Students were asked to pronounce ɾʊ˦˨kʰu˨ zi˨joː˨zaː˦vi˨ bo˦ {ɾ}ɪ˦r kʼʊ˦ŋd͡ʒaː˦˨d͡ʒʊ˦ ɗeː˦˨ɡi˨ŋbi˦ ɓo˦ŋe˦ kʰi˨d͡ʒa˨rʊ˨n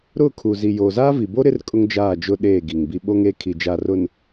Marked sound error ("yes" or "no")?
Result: no